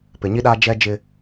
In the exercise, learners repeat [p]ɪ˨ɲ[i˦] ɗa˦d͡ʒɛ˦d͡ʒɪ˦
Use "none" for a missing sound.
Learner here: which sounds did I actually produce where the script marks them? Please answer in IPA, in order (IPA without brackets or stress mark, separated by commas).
p, i˦